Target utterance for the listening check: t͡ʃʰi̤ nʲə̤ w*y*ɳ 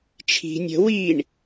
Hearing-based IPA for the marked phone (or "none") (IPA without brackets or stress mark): i